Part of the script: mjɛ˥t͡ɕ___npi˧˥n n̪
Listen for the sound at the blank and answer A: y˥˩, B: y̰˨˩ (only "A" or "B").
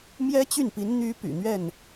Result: A